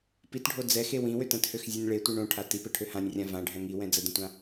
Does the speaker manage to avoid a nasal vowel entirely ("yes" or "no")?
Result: no